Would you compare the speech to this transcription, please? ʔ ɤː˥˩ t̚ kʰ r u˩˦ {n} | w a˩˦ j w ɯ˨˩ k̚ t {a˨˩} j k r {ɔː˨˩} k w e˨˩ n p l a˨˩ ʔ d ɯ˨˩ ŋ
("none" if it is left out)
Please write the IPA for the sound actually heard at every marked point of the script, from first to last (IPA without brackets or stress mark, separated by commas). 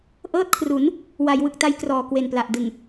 n, a˧, ɔː˨˩